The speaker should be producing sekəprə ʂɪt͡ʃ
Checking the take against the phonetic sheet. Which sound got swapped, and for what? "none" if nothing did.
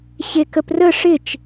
s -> ɕ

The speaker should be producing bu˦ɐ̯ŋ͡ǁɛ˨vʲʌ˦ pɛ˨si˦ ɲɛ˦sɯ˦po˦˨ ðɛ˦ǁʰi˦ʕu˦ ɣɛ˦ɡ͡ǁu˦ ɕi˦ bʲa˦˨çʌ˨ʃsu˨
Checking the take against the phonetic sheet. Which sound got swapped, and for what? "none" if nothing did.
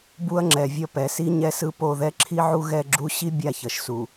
none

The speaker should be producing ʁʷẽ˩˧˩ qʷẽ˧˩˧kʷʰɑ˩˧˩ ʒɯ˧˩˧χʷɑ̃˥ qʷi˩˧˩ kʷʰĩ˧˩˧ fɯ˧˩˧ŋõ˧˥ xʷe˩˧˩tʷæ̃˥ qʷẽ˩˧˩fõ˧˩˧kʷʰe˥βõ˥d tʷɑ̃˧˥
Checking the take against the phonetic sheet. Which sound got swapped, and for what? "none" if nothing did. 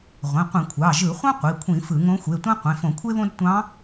none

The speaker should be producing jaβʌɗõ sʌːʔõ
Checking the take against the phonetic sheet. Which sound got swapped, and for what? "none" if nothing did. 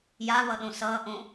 none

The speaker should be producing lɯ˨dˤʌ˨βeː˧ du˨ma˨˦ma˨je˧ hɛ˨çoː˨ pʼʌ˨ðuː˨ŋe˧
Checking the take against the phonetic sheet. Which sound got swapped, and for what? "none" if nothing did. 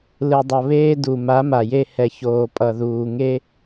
none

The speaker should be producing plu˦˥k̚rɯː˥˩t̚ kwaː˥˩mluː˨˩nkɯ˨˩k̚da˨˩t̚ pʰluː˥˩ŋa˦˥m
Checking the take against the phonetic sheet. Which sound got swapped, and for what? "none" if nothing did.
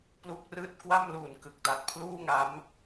aː˥˩ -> a˥˩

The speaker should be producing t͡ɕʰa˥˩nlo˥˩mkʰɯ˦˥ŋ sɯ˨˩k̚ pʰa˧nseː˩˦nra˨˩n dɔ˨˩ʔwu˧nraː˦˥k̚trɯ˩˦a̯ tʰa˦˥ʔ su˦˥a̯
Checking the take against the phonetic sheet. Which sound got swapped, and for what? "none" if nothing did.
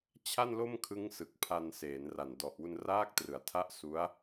none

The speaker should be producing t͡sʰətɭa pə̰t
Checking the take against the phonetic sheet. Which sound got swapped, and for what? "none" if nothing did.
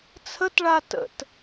p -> t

